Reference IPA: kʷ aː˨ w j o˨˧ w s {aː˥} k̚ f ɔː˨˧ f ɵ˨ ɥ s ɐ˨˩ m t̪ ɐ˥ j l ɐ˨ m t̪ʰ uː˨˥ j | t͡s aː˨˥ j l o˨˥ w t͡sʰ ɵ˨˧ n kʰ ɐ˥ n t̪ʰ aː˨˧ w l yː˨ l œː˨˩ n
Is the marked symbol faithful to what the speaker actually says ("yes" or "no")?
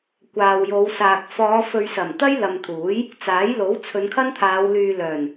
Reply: no